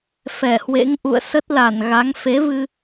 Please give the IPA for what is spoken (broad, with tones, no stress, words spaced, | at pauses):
fɛ˧˩hwḛ˧˥ŋ ʔṵ˧˨ə̯sə˦˥t̚la˧˩n ɣa˨˦ŋ fe˨˦vɨ˧